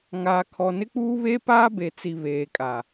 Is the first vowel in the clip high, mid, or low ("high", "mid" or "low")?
low